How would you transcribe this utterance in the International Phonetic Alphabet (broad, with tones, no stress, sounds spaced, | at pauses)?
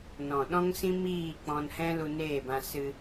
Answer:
n ɔ̃˨ ɗ ɔ̃˦ ŋ s ĩ˦ m iː˦˨ k͡p ɔ̃˧ n h ɛ̃˦ l u˧ n eː˦˨ b ã˧ s ɨ˧